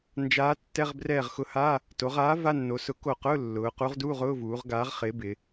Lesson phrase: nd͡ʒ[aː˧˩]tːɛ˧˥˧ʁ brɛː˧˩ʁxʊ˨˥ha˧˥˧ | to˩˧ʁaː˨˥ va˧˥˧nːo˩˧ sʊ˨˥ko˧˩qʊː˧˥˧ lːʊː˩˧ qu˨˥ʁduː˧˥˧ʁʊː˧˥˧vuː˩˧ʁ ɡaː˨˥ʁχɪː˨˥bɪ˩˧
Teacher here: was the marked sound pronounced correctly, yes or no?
no